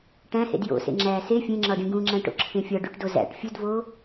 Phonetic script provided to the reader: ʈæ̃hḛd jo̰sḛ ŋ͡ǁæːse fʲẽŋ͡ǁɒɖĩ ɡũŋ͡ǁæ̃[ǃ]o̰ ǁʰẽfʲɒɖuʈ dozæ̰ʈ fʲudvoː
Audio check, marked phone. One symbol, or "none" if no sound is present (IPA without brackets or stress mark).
ʈ